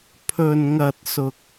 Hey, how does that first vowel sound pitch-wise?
low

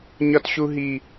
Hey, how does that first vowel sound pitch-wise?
high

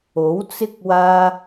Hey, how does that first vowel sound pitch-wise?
rising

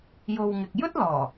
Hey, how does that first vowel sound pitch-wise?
low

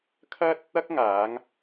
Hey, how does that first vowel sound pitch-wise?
high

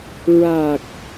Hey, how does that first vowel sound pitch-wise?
low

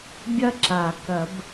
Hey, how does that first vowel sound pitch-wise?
high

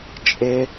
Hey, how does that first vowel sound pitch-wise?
high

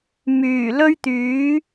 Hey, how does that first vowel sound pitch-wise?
low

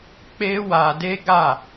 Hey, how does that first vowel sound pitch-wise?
high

